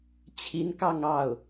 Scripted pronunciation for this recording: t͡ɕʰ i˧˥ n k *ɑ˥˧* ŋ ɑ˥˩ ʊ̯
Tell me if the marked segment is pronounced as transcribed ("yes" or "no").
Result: yes